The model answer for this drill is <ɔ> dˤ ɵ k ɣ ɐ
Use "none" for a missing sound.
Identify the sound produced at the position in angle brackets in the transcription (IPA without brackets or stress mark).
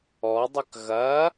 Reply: ɔ